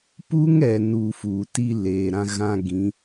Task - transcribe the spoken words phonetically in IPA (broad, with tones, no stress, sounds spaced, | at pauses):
p u˦ ŋ ɛ˨ n u˨ f uː˨ t i˦ l eː˨ ɾ ã˦ ɣ ã˦ ɡ ĩ˨˦